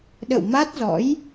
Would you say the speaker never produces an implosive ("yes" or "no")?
no